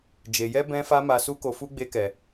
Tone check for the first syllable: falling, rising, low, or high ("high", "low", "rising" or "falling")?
low